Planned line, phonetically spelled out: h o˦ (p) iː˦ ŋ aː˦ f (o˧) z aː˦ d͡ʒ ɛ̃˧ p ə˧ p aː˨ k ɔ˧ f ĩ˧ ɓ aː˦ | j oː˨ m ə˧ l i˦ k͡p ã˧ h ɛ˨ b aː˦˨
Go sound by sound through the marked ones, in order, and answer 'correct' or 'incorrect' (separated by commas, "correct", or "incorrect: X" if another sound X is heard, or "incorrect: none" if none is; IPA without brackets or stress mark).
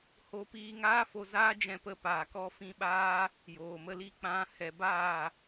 correct, correct